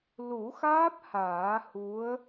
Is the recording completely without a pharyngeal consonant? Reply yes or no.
yes